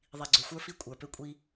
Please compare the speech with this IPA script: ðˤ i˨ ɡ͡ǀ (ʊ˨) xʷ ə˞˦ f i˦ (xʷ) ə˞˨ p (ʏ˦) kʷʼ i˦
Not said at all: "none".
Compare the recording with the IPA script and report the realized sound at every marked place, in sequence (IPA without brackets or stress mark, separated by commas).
ɵ˨, kʷʼ, ʏ˦